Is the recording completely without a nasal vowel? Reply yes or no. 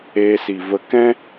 no